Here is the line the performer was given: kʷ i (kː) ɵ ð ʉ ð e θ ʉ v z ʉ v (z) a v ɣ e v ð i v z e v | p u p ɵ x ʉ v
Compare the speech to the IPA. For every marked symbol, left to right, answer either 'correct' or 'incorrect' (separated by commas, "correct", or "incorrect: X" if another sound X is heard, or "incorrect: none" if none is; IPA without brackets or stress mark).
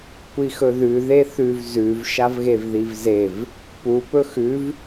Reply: incorrect: x, incorrect: ʃ